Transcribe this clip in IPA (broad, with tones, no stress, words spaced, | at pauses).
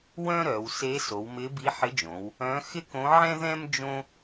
wœ̃˥ɾœ˩˧w se˧˥so˩˧wmɪ˧˥ bi˧˥ħɪ˧˥d͡ʒõ˩˧w | œ̃˧˥xɪ˥ kõ˧˥ʕɛ̃˥ðɛ̃˥m d͡ʒõ˥